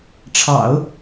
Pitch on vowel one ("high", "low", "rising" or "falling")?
low